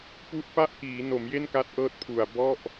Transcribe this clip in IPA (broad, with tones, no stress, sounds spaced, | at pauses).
p u˦˥ ʔ p a˥˩ ʔ k iː˩˦ n o˩˦ m j e˥˩ n k a˦˥ t̚ ʔ ɤː˥˩ t̚ pʰ u˨˩ a̯ b ɔ˥˩ ʔ